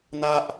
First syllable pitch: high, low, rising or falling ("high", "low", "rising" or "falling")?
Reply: high